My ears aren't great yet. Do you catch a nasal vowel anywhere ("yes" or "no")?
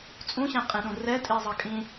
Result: yes